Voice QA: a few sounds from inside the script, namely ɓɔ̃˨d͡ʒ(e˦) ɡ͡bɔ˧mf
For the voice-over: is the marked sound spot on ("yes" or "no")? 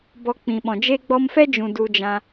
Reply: yes